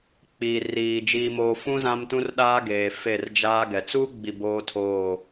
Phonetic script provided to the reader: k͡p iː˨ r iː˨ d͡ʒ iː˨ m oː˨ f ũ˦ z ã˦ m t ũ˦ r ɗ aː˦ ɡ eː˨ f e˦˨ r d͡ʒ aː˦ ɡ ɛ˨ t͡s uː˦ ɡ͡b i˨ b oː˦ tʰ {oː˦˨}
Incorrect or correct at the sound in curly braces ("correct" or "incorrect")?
correct